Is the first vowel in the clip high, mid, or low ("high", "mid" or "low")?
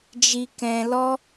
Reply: high